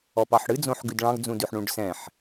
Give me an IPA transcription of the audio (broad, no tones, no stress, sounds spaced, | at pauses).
ɔ p ɑ ħ ɽ ɨ d͡z õ ħ ɡ ʉ d ɭ ɑ̃ ɡ d͡z ũ d ʉ ħ ɳ ũ ɖ s ɛ̃ ħ